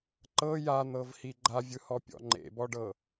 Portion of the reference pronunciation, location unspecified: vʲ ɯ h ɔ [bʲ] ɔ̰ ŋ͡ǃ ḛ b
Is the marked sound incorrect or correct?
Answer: incorrect